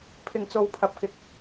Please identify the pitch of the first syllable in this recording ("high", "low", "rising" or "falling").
low